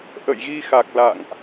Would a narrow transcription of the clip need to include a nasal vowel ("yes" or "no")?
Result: no